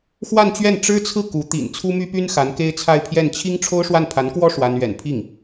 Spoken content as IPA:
xwa˥˧nt͡ɕɥɛ˥˩n ʈ͡ʂɻ̩˥t͡sʰɹ̩˥˩ ku˧˥ t̪ḭ˨˩nt͡sʰu˥my˥py˥n xa˧˥nke˥ɪ̯t͡sʰa˥˧ɪ̯pʰjɛ˥˩n t͡ɕʰi˥ŋ ʈ͡ʂʰo˥ʊ̯ʂwa˥˩n pʰa˧˥nkwɔ˥ ʂwa˥n ɥɛ̰˨˩npʰi˥˩ŋ

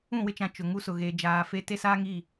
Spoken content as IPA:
ũ˦˨wɪ˦t͡ʃã˨ t͡ʃʊ˨ ŋu˦sʊ˨ɣeː˨ d͡ʒaː˨fe˦ te˦saː˦ŋi˦˨

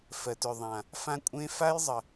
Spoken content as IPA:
fɜ˨tʏ˨ðˤã˨ | fã˦kʷʼẽ˦ fa˦jzˤə˨

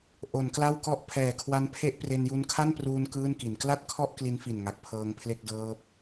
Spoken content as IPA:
ʔo˩˦nkla˥˩wkɔ˥˩ʔ pʰɛː˨˩kʰwa˦˥npʰe˥˩ʔpre˧n ju˧nkʰa˥˩npruː˧n kɯː˥˩nki˩˦n kla˥˩t̚kʰɔ˥˩ʔ kli˦˥nfi˨˩nŋa˨˩k̚ pʰɤː˧ŋpʰle˥˩k̚dɤː˦˥p̚

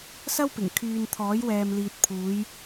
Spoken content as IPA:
sɐ˥wpɪ˨˩ŋ kʰyː˨n t̪ʰɔː˨˥jwɛː˨mliː˨t̚ pʰuː˨˧j

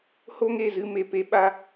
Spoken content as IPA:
ho˦ŋe˦˨zɨ˧ me˨ pe˧ ɓa˦

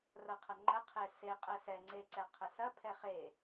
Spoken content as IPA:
rɐqʰɐŋ͡ǃə qʰese qʼɛsɛ ŋ͡ǀeǀɛqʰəsɐ pʰɛχe

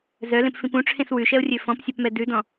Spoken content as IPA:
zœlẽpfĩp ũʈ͡ʂʰẽs wʉʃɛo̯rʲø fɔ̃psʲœpmɛ dʉdɔ̃

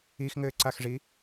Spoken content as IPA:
ixŋɘːǀaxʐi

